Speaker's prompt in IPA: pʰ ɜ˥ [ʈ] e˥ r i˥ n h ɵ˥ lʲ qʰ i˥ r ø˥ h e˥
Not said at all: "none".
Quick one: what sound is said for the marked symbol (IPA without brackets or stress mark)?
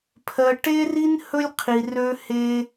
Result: ʈ